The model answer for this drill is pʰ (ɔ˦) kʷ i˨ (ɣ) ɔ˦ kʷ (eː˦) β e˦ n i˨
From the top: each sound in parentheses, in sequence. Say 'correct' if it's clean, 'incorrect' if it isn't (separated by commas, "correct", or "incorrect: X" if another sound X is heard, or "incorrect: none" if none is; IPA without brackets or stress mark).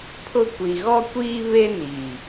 incorrect: ʊ˦, correct, incorrect: iː˦